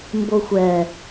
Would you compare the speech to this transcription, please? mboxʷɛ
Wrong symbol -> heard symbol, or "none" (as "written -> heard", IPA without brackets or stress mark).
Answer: none